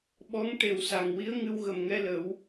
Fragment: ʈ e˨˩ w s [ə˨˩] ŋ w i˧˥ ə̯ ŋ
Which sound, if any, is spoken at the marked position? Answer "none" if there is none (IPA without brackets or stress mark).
a˨˩